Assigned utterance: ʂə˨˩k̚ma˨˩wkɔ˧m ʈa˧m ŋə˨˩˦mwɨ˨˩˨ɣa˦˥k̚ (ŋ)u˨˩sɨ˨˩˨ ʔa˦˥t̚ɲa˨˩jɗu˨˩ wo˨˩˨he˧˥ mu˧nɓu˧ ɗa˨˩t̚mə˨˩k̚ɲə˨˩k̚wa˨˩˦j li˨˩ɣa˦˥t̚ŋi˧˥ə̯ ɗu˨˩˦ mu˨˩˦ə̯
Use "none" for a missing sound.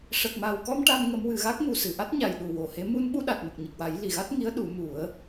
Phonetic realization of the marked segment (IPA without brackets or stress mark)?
ŋ